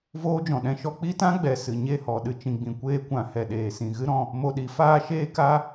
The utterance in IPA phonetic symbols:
voː˦d͡ʒɔ̃˨ɗɛ̃˦ʃɔ˦ k͡pi˦tã˦ɡ͡bɛ˨ sɨ˨ɲe˦˨hɔ˨ ɗɨ˨t͡ʃĩ˨ɡ͡bĩ˨ kʷeː˧kʷã˨ hɛ˨ɗeː˨sĩ˨ ɣɨ˦ɾɔ̃˧ | mo˧ɗi˨˦faː˦ ʃeː˦ka˦

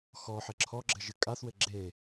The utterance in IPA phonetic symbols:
xɔħɘ ǁʰɔɡ͡ǁɘʒ ɨkʼaθwɘ ɡ͡ǁe

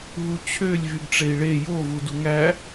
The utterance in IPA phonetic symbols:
ɦut͡ɕʰølʲ vyɡʈ͡ʂei̯ɭe jo vuduŋæ

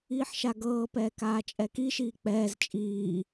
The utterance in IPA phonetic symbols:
iːħʃaɡɤːpɛː kaːt͡ʃʼɛkiʃiː k͡pɛːz t͡ʃʼiː

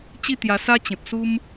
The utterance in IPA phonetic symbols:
t͡ɕi˥˧t̪ja˧sa˦ t͡ɕẽ˨p̚ su˦m

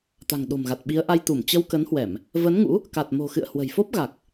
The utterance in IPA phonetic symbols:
t̪a̤˨˩ŋɗo̤˨˩mɣa˨˩t̚ ɓi˨˦ə̯ʔa˧jt̪u˧˩m t͡ɕə˧wkə˨˦nhwɛ˧˩˨m | və˨˦nŋṵ˧˥ | ka˨˩t̚mo̤˨˩xɨ̰˧˨ə̯ hwə̤˨˩jfo˦˥p̚ɣa˨˩k̚

